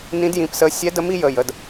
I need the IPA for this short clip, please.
nĩ˦˥djĩ˧˥˧psə˦˥ sʲɛ˦˥də˦˥m i˦˥jə˧˥˧jə˧˥˧d

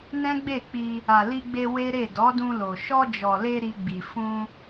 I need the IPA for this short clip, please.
nɛ̃˦ɡ͡be˦˨ k͡pi˧ | a˨li˧ɡ͡be˧ we˦ɾe˦˨ dɔ˨˦dũ˧lo˨ ʃɔ˧d͡ʒɔ˨le˧ ɾi˧ɡ͡bi˨ fũ˧

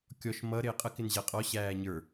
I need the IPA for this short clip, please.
kʲɔʃ mʌ ɾɪːqʼə kɪnʑæqʼɔ ɕæːɲə˞

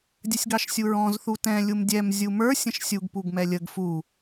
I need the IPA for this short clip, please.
dʲəsʲɡɑʃsʲuɹɔ̃z θutɛ̃ lʲumdʲɛm zʲumə˞ sʲə̃ʃsʲuɡ puɡmɛlʲəɡ fu

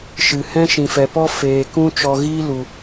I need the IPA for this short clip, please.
ʃɨ˨ hɛ̃˦ʃĩ˨fɛ˨pɔ˦ feː˨kũ˦ t͡ʃɔ˧ ɣiː˦ lu˨

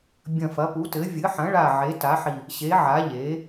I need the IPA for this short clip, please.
bʲɐ̃˨˩ fɐ˩˧pu˩˧tɘː˩˧ vʲɨ˩˧ħɐ̃˩˧ɭa˨˩ ʕe˩˧ta˩˧ħi˨˩ | ɕe˩˧ʕa˩˧ ʎeː˩˧

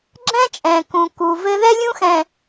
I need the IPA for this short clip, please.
ɡ͡ǁɛ̃˦t͡ʃʼɛ̃˨ kũ˨ku˨ vɘ˦ ðɛ˦lʲũ˦xɛ̃˨

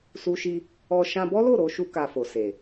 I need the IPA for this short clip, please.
su˧ʃi˧ | ɔ˧ ʃã˧bɔ˦lo˦˨ɾo˧ ʃu˦ka˧fo˨se˨

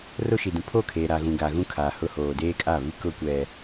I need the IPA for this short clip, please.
ro˦ʃi˨dũ˨ pʰo˦˨kʰeː˨ɾa˨ɣũ˨ ɡa˨ɣũ˦kʰaː˨hʊ˦ hoː˨deː˦kʼa˦˨βi˦ kʊ˦kʷɛ˨

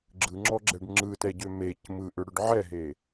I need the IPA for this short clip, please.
ɡ͡ǁɯŋ͡ǁɔɡ͡ǁɛɖ ŋ͡ǁɯtɛɟø mec mɯʔʏɽʏɖ ʕɛɦe

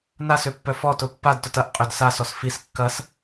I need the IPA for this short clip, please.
nasøpːœ fɔtʊ pːadtʊt ɐʔ qʼʏd sasɔs fis kːɐs

